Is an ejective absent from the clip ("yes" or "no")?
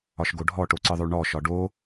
yes